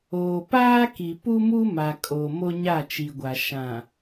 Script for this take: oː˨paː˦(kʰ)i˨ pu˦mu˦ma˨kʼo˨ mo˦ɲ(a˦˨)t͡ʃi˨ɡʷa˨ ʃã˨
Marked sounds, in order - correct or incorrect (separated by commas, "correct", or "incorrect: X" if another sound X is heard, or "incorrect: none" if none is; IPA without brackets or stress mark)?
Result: incorrect: k, correct